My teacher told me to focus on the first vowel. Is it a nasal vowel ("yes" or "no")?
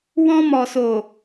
yes